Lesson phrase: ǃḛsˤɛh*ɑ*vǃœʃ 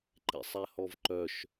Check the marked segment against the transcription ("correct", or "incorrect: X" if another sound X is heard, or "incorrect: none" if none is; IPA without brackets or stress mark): incorrect: ɔ